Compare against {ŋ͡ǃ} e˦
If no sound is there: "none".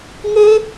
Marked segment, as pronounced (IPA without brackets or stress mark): ŋ